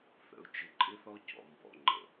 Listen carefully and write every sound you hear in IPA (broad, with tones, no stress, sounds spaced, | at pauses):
θ ə̰˨ ʊ̯ t͡ʃ ɪ˨ ǃʼ ɪ˦ θ ɔ˦ c ɔ̰˨ m b ɔ̰˨ ŋ͡ǃ ə̰˨